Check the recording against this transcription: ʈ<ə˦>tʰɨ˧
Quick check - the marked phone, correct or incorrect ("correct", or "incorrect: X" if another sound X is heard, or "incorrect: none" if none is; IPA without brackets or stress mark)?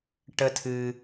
correct